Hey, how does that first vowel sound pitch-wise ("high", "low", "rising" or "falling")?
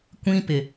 high